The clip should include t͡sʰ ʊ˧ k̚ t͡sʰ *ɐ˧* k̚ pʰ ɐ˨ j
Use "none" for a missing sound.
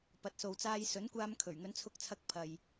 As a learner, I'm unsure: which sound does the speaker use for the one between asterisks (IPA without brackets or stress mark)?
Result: ɐ˧